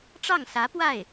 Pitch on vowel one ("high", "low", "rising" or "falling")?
falling